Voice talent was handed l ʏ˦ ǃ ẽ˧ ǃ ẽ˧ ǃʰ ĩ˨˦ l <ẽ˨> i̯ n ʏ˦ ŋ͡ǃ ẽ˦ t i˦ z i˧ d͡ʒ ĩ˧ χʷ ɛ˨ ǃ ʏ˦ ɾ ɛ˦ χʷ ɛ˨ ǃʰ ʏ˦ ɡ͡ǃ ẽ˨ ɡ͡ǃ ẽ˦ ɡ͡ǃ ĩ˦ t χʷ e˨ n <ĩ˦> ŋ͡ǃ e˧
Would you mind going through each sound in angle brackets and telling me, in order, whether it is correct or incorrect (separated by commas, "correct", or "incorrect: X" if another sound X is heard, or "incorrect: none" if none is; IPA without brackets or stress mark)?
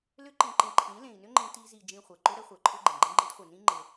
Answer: correct, correct